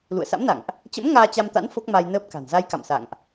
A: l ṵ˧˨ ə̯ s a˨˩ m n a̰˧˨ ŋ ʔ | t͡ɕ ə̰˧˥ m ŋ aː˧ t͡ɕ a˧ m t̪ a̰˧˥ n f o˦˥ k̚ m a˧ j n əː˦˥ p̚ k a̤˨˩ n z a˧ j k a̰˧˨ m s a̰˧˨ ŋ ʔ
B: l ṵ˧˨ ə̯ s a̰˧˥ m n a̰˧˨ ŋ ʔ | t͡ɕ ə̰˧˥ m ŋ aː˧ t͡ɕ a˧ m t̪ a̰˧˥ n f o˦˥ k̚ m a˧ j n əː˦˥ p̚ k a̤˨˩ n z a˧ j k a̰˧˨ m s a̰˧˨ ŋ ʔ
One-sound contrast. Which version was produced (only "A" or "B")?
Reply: B